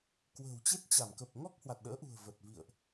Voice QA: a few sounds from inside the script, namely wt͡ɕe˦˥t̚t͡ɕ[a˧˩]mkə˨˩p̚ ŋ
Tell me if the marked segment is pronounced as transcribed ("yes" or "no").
yes